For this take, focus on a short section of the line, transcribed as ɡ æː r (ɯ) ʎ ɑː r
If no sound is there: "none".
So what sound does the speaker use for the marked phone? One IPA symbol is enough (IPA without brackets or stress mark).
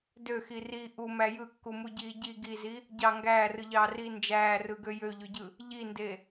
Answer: ɯ